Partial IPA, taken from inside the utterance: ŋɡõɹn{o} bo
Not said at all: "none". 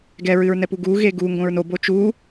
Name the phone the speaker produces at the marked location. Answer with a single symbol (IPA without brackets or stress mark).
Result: o